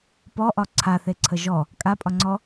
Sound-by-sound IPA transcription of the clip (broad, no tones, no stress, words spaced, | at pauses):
pɔʔɒ ǀʰaθeǀʰə ʒɔ | kʼapʼɒŋ͡ǀɔ